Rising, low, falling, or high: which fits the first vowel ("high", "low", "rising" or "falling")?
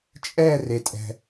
falling